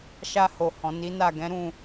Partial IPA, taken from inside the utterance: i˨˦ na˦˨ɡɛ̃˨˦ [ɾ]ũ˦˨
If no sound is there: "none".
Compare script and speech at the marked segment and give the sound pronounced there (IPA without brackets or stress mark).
ɾ